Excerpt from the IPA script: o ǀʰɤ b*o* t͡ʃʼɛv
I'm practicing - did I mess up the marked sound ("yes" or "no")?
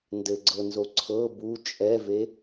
yes